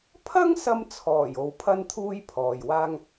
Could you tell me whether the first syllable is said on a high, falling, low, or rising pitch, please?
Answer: high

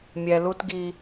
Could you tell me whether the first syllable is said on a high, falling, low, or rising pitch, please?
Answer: low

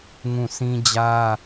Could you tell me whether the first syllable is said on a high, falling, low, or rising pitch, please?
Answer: falling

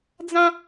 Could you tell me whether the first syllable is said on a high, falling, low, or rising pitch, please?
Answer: high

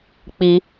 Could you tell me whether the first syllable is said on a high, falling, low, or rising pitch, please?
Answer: high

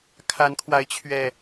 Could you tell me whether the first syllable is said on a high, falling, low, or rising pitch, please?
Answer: rising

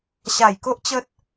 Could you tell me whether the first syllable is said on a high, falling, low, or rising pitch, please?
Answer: falling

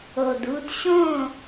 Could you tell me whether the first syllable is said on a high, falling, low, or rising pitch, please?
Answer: low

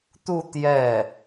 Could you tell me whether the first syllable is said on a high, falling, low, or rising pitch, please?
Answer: falling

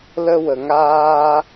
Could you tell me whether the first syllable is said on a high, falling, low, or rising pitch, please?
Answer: high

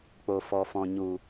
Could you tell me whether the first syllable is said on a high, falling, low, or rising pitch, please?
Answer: low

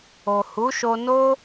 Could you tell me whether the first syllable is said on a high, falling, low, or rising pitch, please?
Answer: low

